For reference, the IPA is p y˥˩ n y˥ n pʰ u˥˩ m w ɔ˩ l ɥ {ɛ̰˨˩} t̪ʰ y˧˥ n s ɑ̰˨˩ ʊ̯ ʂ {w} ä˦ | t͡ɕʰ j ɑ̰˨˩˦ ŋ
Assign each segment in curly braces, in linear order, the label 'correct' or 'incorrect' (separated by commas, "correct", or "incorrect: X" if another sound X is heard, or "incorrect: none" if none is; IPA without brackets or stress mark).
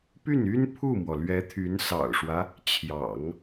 incorrect: ɛ˧˥, correct